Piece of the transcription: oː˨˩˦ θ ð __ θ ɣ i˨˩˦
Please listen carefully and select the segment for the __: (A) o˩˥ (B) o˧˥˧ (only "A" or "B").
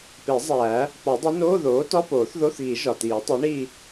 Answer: B